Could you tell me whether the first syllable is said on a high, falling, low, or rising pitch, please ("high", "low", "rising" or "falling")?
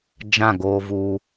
falling